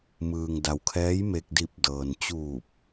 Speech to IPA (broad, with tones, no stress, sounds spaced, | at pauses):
m ɯː˩ ŋ d a˩ w kʰ ɛː˧˥ j m e˧ k̚ d i˧˩ p̚ d ɤː˩ n t͡ɕ uː˧˩ p̚